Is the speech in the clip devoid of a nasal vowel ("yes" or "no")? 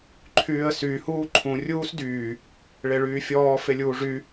no